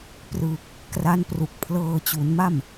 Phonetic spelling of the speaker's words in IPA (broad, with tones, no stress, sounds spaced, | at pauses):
p r ɯ˨˩ k̚ | k r a˦˥ n p r u˨˩ k̚ pʰ l ɤː˧ t͡ɕ u˩˦ n m a˥˩ m